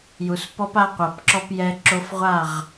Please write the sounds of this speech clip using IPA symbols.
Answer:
j u˨ s p ɔ˦ p a˦ qʷ a˨ p ǁ ɔ˦ p j ɛ˦ ǁ o˦ f ʁʷ a˦˨ ʁ

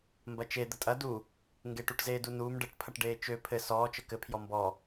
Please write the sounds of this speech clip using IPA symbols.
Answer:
m b ɐ t͡ʃ e d̪ ə tʼ ɐ d u | ŋ ɡ e ʈ u ʈ z eː d u n uː m ɖ ə ʈ pʰ ɐ ʈ ɖ eː t͡ʃ ø pʰ ɘ s ɔː t͡ʃ ə k ɘ pʰ j ɔ m b ɔ

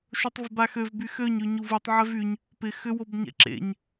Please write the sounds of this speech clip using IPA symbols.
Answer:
ʃ o tˤ v ɪ b a x ø v b y x ø ɲ y ɲ u v u tˤ ʕ ɛ v y ɲ | p ɪ x ʏ w o b ɲ ɛ̰ ǁ ḛ ɲ

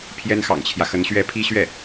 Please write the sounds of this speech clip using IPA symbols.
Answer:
pʰ j ɛ˥ n x ɑ̰˨˩ ŋ t͡ɕʰ j ä˦ x ə˧˥ n ɕ ɥ ɛ˥ pʰ i˥ ɕ ɥ ɛ˥˩

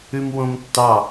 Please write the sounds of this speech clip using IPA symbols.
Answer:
ʉ m w õ m tː ɑ

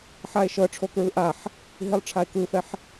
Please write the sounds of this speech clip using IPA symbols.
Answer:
ħ a e̯ ʃ ɤ ʈ͡ʂʰ o k ɹ ɯ ʔ a ħ | ɦ i lˠ ʈ͡ʂʰ a e̯ k ɯ f ɛ ħ

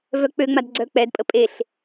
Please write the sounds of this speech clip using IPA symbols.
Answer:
v œ k͡p ø ŋ͡m a d ɡ͡ǀ œ k͡p ɛ d pʼ ə pʼ e ɬ

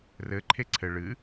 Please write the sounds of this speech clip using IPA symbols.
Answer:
r ɘ ǃʰ e ǀʰ ɘ ɭ ɨ

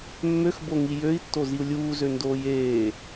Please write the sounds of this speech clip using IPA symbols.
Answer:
mː ø x b o ŋ i j ø i̯ tː o z i u̯ lʲ uː z ø n d oː j eː

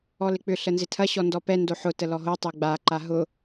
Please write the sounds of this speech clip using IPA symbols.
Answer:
ɔ l ɪ k͡p ʏ ɬ ə n z ɪ tʰ ɐ ɕ ɔ n d ɔ p ɛ n d o ħ ʊ t ə l ɔ ɦ o tˤ e ɡ͡b a ǃ a ɦ ʊ

